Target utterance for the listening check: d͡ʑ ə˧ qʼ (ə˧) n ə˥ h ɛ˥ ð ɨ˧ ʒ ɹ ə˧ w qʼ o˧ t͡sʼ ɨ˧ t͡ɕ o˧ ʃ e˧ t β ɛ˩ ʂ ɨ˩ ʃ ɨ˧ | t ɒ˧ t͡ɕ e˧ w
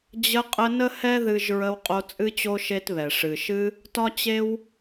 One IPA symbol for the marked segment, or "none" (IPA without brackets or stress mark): ə˧